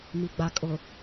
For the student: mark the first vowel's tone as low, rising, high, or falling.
low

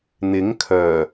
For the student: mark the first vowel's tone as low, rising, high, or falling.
rising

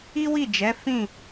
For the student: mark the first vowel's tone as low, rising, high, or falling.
high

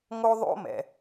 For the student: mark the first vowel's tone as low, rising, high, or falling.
high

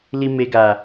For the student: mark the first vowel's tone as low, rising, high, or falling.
low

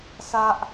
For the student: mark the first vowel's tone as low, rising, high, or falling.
high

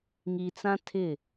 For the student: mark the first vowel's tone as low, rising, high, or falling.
low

